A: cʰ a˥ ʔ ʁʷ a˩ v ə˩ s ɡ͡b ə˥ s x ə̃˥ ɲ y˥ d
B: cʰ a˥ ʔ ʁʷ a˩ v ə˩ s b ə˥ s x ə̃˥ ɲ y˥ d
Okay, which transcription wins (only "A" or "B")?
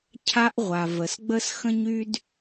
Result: A